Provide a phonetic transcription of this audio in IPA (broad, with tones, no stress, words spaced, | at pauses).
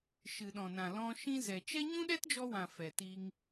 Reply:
ʃɨ˨ɗɔ̃˨nã˨ lɔ̃˧ ʃĩ˧ zɛ˨t͡ʃɛ˦ ɲũ˦ɗɛ˦td͡ʒɔ˧wã˨ fɛ˨ti˧ŋ